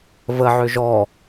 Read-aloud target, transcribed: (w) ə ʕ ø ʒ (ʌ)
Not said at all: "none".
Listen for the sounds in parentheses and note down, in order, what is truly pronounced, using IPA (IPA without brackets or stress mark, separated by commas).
v, ɔ